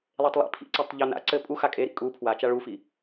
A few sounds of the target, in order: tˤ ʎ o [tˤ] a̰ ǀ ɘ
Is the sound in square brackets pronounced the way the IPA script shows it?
no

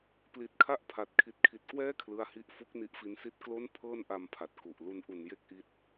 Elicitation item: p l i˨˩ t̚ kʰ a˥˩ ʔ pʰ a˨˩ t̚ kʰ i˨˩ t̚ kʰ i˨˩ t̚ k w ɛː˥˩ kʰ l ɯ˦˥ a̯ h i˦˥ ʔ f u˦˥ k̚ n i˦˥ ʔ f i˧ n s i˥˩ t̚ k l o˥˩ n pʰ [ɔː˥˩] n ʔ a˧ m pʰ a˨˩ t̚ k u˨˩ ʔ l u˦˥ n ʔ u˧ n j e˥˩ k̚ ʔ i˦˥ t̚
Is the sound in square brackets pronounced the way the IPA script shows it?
no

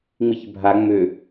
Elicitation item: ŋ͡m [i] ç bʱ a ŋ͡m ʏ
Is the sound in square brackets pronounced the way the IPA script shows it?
yes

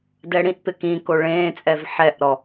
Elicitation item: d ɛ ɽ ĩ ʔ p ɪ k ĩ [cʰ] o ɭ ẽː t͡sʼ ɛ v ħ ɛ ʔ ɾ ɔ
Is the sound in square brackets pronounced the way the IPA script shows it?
no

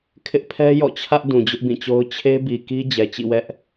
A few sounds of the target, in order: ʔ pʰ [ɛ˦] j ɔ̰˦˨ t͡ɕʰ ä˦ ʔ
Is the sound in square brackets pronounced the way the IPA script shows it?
yes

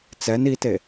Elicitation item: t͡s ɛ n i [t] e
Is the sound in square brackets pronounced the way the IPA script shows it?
yes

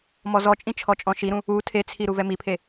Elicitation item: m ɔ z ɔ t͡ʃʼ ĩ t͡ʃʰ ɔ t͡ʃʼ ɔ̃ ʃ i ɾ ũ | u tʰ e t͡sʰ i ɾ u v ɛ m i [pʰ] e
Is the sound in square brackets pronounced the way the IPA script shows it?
yes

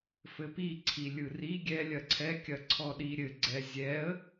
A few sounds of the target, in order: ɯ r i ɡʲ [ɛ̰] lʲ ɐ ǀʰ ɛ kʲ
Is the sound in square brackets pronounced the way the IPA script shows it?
no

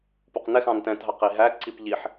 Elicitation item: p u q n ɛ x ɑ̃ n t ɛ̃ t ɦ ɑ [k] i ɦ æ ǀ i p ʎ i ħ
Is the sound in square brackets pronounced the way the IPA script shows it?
no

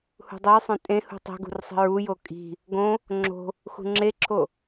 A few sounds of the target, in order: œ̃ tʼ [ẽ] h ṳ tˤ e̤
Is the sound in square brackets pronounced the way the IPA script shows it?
yes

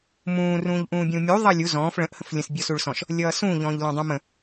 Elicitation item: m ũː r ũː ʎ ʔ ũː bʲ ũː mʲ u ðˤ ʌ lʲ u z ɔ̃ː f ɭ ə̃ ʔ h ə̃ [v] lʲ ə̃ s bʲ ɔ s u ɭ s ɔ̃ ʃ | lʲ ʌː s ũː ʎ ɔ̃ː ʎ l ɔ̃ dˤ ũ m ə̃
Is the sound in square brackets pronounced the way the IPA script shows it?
no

